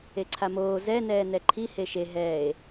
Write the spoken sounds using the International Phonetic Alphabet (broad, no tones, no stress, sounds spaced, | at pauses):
e ǀʰ a m oː z ɛ n ɛː n ɛ ǃʰ i h e ʃ e ɦ ɛː e̯